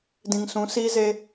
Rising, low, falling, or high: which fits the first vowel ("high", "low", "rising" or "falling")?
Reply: low